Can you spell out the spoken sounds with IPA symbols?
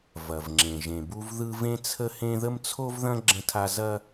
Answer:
v ɐ˨ v ŋ͡ǁ ẽ˨ ʒ ẽ˨ b u˦ v ð ɯ˦ v ẽ˦ t͡sʰ ə˦ h ẽ˦ ð ə˦ m t͡sʰ o˦ v ð ɐ̃˦ ɡ͡ǁ ə̃˦ tʰ a˦ z ɐ˦

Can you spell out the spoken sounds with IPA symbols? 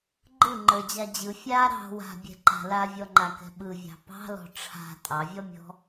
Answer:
ɡ͡ǃ ɯ ŋ͡ǃ ə˞ d͡ʑ a d͡ʑ ɯ fʲ a ɾ ɑ̤ w a̤ bʲ ɛ̤ ǃ a̤ l a vʲ ɔ ŋ͡ǃ a k ɛ̤ ɓ ɯ vʲ ɑ̤ p ɑ̤ l ɔ̤ ʈ͡ʂʰ a̤ tʼ ɑ vʲ ɔ mʲ ɔ̤

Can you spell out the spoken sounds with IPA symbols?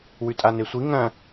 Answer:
w ʉ tʼ a n e sʷ i ŋ ɐ̃

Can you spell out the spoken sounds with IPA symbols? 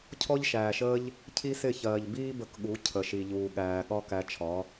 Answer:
cʰ ɔ˦ ʎ ʃ æː˨ ʃ əː˦ ʎ | cʰ i˦ s ɪ˦˨ ç ɜː˨ ʎ b iː˦ b ə˧ k ɠ u˨˦ cʰ ə˨ ʃ i˨ ʎ uː˨ ɠ æː˨ ɠ ɒ˦ k æ˧ t͡ʃʰ ɒ˨˦

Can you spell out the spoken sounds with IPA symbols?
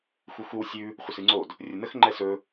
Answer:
xʷ ɨ xʷ ɨ w sʲ ʉ | χʷ ə s ɨ ŋ͡ǀ o d | rʲ ə n ə x ŋ͡ǃ ɛ s ɵ

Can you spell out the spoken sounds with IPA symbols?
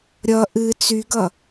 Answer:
ɾʲ ʌ ʔ ɨ t͡s y ɡ ʌ

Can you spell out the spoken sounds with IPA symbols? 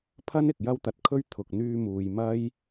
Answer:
pʰ ɐ˥ n ɪ˨ k̚ j ɐ˥ w t̪ ɐ˧ t̚ kʰ ɵ˥ ɥ t̪ʰ ʊ˨ k̚ n̪ yː˧ m uː˨ j m ɐ˥ j

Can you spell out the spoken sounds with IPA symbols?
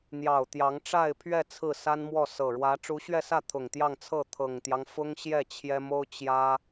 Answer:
n̪ j ɑ˨˩ ʊ̯ t̪ j ɑ˧˥ ŋ ʈ͡ʂ a˥˧ ɪ̯ pʰ ɥ ɛ˥˧ t͡sʰ ɹ̩˥˩ s a˥ n m w ɔ˥˩ s ɤ˨˩ ɻ w ä˧˥ ʈ͡ʂ u˧˥ ɕ ɥ ɛ˥˧ s ä˥˩ t̪ʰ ʊ˨˩ ŋ t̪ j ɑ˥˧ ŋ t͡sʰ ɤ˥˩ t̪ʰ ɤ˨˩ ŋ t̪ j ɑ˦ ŋ f ʊ˥ ŋ ɕ j ɛ˥˩ t͡ɕʰ j ɛ˥ m o˥ ʊ̯ t͡ɕ j ä˥

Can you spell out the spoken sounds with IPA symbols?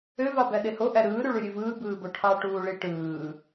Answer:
ø v ɑ b æ ɗ e h o ʔ æ ɾ ɯː ɾ y ɭ y ɾʲ ø v ɯː b ɯː b o ʈʰ ɑ ʈ uː ɭ i ʈ ɯː

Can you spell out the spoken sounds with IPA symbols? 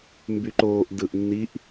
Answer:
m b y ǃ oː ʔ d ɯ ʔ nː i ʔ

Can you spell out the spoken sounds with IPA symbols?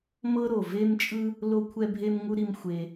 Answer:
m ɤ˥ ɾ o˩ v e˥ m t͡ʃʼ ɯ˥ | l o˥ kʷʰ ɛ˥ bʱ e˥ m ŋ u˥ ɾ i˥ m xʷ e˧

